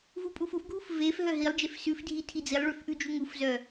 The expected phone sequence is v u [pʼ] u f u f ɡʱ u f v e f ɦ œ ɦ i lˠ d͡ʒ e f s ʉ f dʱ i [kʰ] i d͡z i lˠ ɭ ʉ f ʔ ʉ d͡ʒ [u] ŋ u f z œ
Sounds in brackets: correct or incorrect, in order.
correct, incorrect: tʰ, correct

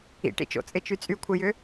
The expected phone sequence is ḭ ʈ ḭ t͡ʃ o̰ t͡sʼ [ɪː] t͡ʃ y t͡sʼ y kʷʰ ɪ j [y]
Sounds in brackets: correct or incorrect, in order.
incorrect: ɪ, incorrect: ʏ

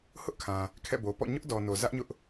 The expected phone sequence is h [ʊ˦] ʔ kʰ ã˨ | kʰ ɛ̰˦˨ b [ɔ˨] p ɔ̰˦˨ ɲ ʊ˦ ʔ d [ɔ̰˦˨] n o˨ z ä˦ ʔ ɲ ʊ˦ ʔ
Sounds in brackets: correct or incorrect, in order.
correct, incorrect: o˨, incorrect: ɔ˨

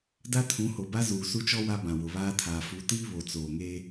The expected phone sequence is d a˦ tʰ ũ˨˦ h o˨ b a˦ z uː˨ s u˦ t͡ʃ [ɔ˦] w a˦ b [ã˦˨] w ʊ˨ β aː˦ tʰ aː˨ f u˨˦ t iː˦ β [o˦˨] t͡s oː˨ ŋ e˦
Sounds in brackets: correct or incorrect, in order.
correct, incorrect: ã˨, incorrect: o˨

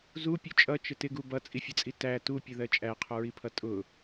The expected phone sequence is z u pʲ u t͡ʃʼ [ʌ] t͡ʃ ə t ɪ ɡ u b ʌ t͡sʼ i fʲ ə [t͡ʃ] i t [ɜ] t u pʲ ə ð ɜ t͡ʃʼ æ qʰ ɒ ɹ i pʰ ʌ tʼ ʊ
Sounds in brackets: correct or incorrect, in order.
correct, incorrect: t͡sʼ, incorrect: æ

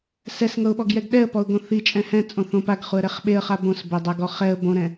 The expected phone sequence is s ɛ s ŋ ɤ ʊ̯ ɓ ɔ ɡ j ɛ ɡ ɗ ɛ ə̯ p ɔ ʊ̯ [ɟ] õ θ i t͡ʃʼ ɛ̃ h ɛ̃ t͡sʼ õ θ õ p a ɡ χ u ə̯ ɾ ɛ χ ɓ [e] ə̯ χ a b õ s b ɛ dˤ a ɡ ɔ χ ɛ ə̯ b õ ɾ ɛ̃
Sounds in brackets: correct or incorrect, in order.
incorrect: ɡ, correct

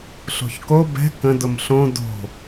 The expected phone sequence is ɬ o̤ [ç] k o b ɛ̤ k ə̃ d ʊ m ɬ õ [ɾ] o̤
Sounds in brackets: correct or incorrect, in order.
correct, incorrect: d

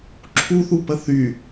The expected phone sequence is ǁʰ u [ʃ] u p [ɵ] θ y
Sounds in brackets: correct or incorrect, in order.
incorrect: θ, incorrect: ə

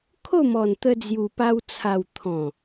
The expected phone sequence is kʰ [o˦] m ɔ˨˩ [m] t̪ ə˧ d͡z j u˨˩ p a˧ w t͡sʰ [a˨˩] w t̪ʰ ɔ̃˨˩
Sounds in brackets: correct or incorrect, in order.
incorrect: o˥˧, incorrect: n, correct

